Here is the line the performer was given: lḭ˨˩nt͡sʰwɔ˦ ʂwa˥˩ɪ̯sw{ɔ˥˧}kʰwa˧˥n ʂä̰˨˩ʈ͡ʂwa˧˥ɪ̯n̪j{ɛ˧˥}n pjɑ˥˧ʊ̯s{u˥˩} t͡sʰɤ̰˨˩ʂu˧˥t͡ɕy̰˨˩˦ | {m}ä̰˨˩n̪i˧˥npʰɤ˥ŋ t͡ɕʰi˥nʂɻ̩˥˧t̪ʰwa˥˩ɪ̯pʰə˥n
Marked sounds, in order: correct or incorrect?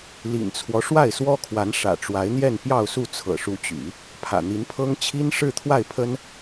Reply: incorrect, incorrect, correct, incorrect

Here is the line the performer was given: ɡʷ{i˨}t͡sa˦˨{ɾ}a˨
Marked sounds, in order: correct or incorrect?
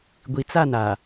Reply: correct, incorrect

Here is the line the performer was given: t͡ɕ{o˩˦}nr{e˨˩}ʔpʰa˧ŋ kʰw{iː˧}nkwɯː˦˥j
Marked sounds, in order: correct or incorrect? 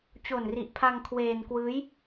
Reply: incorrect, incorrect, incorrect

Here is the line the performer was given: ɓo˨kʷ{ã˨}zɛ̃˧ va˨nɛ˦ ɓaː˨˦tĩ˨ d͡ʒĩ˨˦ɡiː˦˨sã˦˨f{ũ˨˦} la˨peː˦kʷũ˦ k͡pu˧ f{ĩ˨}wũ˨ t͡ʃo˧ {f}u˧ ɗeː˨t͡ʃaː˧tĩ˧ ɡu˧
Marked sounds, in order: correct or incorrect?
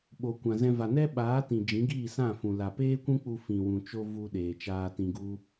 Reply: correct, incorrect, correct, incorrect

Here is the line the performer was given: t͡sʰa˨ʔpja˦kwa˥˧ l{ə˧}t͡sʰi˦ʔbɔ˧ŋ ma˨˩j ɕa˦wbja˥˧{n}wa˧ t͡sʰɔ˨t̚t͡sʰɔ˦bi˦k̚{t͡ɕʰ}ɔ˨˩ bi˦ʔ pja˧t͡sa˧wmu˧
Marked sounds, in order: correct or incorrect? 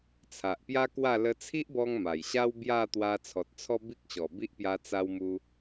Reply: correct, incorrect, incorrect

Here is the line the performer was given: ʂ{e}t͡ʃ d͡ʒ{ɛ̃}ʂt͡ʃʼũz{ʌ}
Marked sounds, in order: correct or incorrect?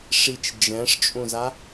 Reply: incorrect, correct, incorrect

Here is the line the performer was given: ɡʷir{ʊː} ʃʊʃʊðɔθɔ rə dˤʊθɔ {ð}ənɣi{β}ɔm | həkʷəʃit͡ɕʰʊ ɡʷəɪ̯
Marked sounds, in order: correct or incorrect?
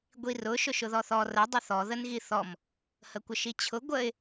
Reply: incorrect, correct, incorrect

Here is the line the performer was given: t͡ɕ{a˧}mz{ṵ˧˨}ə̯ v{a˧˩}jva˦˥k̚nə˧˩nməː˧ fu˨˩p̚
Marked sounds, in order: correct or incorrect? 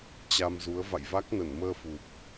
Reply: correct, incorrect, incorrect

